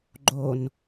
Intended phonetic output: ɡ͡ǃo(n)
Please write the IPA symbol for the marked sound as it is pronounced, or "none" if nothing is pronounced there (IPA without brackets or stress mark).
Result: n